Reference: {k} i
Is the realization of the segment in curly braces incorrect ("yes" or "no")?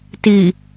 yes